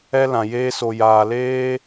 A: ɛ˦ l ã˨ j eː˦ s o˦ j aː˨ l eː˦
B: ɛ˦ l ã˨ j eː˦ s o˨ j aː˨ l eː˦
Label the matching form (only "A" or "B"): B